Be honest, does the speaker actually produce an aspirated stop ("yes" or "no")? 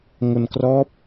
no